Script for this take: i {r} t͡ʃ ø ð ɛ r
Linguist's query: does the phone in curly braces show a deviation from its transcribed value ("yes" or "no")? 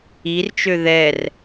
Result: no